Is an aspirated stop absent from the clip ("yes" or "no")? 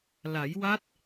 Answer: yes